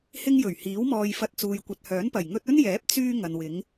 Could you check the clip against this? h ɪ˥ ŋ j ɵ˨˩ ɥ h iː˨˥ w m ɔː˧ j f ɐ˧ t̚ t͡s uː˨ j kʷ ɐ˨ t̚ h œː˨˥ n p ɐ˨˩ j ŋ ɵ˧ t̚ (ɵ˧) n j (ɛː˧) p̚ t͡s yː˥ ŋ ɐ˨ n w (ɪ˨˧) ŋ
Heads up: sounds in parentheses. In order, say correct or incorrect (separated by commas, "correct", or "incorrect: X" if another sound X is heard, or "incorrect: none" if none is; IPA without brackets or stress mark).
incorrect: ɵ˥, incorrect: ɛː˨˥, correct